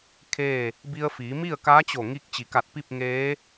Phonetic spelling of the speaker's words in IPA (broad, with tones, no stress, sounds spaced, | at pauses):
kʰ eː˥˨ | b i˧ ə̯ f iː˩˧ m i˥˨ ə̯ k aː˧˥ t͡ɕ o˧˩ ŋ iː˧ k̚ t͡ɕ i˩˧ k a˧˩ t̚ p i˥˨ p̚ ŋ eː˧˥